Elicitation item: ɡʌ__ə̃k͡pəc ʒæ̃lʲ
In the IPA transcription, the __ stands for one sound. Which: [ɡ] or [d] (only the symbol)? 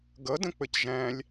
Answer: d